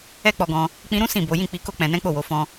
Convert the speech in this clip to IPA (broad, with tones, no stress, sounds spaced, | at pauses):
ɛ˦ k͡p ɔ˧ ɡ ɔ̃˧ | k͡p ĩ˧ ɾ ũ˦ s ĩ˦˨ b o˨˦ j ĩ˦˨ k͡p i˧ k o˦ k͡p ɛ̃˧ n ɛ̃˦ k͡p o˦˨ w o˨˦ f ɔ̃˦